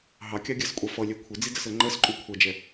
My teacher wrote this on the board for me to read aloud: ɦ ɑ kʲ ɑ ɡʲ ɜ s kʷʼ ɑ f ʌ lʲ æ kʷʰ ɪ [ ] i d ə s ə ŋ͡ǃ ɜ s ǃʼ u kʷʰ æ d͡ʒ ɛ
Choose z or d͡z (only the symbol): d͡z